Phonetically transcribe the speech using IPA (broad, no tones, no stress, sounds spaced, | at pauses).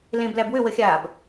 l ẽ b l æ b w ʏ w ə xʲ aː b